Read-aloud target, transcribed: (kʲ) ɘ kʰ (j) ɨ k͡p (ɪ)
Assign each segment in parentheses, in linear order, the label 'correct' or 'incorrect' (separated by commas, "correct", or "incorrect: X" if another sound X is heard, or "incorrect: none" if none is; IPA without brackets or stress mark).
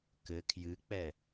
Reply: incorrect: k, correct, incorrect: ɛ